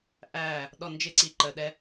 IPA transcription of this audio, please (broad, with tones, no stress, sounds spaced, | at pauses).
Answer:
ʔ æː˦˨ | ɗ ɔ˧ n d͡ʒ ɪ˦˨ ǀ i˧ ǃ əː˨ ɗ ɛ˧